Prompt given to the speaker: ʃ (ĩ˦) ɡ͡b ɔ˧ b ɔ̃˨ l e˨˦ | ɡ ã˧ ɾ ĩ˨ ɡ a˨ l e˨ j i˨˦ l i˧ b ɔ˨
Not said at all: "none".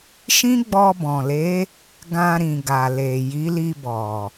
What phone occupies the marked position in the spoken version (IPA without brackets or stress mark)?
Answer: ĩ˦